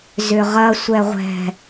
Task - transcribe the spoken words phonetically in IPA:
zʏʁɐ sʷɛʁʷɛ̤

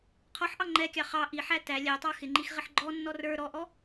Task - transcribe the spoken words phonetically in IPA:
qʰɔħʔɑ ŋ͡ǃɛkʲɑ χɑ ʔiħæ tæ lʲætˤɑ xɪŋ͡ǃix ʁɪħɡ͡ǃɔnːɔ rə˞ ɾɔʔɔ

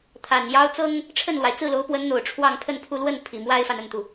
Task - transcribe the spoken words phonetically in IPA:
t̪ʰa˨˩njɑ˥ʊ̯ t͡sɤ˥ŋ | ʈ͡ʂʰə˥˩nlwa˩ɪ̯ t͡sɹ̩˥˩lo˧˥ʊ̯pwə˧˥nn̪o˨˩ʊ̯ ʈ͡ʂʰwɑ˥˧ŋpʰə˥˧npʰu˥˧ lwə˥˩n pʰi˨˩mwa˥ɪ̯fa˨n ə˥˩nt̪u˩

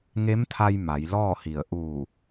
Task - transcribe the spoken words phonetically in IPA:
ŋe˧˥mt̪ʰa˧j ma˩˧jlɔː˥˨hi˧˩ə̯ ʔu˧˩

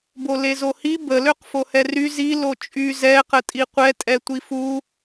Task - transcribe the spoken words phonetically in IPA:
bolezohi bə løqfohɛry zi lot͡ʃʼy zɛ qətʼiqʷɛ tʼɛtʷifu

